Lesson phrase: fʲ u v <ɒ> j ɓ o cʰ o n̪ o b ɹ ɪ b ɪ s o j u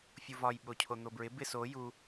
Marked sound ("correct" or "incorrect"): correct